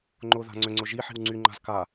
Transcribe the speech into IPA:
ŋ͡ǃ ʊ ð a̤ ŋ͡ǀ ʏ ŋ͡ǀ ʊ ʒ i ħ i̤ w ŋ͡ǀ y ŋ͡ǃ a̤ z k a

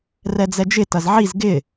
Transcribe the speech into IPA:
r ɛ d͡z ɛ d͡ʒ ɪ t ɐ z ʕ i z ɡ ɪ

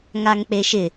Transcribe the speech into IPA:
ŋ a ŋ k͡p e ʃ ɪ

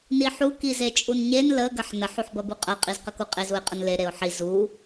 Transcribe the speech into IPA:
n i ħ u k i z e t͡ʃʼ u n ɲ e n l ə ɡ ɐ ħ n ə ħ u ħ b ɐ b u qʼ ɐ qʼ i z q ə k u qʼ e z u ɪ̯ qʼ ə n l e ɾ e ʊ̯ ħ i z u

